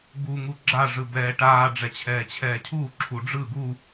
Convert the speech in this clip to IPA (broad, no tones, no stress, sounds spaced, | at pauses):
ɡ u ŋ u ɡ͡ǁ a ʐ ɯ b ɛː ʈ aː ɖ͡ʐ ɛ t͡ɕʰ ɛː t͡ɕʰ ɛː cʰ uː ǁʰ u ɖ͡ʐ ɯ ɡ u